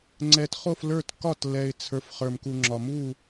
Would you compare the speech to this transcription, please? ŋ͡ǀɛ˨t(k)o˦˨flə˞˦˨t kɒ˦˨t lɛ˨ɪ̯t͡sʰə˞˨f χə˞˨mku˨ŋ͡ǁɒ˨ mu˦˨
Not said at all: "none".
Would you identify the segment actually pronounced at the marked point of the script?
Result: χ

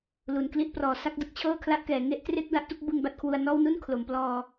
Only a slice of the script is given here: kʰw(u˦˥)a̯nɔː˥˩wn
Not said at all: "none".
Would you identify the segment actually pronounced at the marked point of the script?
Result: u˧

